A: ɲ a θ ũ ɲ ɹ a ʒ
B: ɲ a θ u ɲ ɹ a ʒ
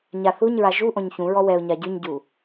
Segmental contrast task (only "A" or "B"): B